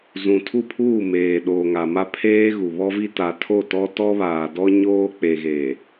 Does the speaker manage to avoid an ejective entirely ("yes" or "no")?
yes